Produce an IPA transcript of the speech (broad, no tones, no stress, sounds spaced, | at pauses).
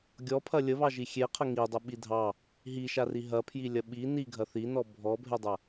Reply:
ɡʲ ɔ pʰ ɐ lʲ ə β ɑ ʒ i xʲ e qʰ ə ŋ i dˤ ɐ ɓ i dʱ ɑ | ɦ i ʃ a r i ɦ ɐ pʰ j i lʲ ɐ ɓ i n i ɡʱ ɐ θ i n ɔ bʱ ɔ bʱ e dˤ ɐ